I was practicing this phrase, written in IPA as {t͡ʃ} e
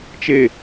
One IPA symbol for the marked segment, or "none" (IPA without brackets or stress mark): t͡ʃ